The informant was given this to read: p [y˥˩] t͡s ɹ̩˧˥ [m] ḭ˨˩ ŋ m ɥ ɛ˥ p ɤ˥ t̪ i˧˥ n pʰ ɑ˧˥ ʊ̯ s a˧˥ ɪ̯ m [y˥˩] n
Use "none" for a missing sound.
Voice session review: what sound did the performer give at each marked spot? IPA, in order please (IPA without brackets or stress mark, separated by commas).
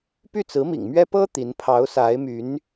y˥˩, m, y˧˥